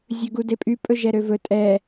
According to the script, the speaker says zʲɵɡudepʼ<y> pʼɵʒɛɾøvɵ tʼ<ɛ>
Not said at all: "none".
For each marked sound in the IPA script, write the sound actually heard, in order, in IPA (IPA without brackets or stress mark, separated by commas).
y, ɛ